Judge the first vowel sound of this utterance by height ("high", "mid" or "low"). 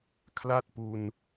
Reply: low